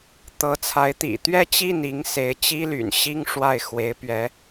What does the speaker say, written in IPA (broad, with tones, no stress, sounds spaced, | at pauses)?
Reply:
t̪ ɤ˧˥ t͡sʰ a˧˥ ɪ̯ t̪ ḭ˨˩ t̪ ɥ ɛ˥ t͡ɕ i˥˩ n i˧˥ ŋ s e˧˥ ɪ̯ t͡ɕ i˥ l y̰˨˩ n ɕ i˥ ŋ ʂ w a˥˩ ɪ̯ x w e˧˥ ɪ̯ p ɥ ɛ˧˥